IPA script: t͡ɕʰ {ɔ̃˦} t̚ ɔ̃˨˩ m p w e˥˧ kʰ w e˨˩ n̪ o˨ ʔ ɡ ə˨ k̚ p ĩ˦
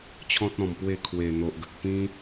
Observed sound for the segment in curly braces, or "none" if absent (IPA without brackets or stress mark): ɔ̃˦